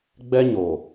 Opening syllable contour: high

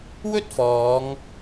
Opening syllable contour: high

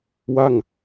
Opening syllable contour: falling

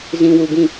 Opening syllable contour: low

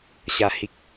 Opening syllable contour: low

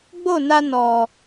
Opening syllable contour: falling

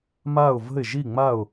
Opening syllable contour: falling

